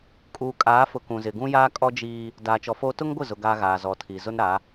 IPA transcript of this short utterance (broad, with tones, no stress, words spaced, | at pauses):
kʼuː˨kʼaː˨˦fʊ˨ kũ˨zɪ˨ ɡũ˦jaː˦ kʼɔ˦ d͡ʒiː˦ | daː˨t͡ʃɔ˨foː˦ tʊ˦ŋɡʷɪ˦˨zʊ˨ ɡaː˦ɣaː˨ zɔ˨tʰiː˨ zʊ˦nɾa˨˦